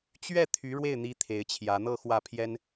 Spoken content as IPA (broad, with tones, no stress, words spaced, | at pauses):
t͡ɕɥɛ˥˩ t̪ʰy˧˥ɻwe˥˩ɪ̯n̪i˧˥ t̪ʰe˧˥ɪ̯t͡ɕʰjä˧˥ n̪ɤ˥˧xwä˥˩pʰjɛ˥n